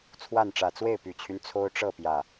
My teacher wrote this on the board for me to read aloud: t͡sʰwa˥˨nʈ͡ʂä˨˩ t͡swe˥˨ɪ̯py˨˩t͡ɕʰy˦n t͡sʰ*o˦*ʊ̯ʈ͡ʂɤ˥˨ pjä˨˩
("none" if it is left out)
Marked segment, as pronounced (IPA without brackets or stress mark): o˦